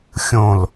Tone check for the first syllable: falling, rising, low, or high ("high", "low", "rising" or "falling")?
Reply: falling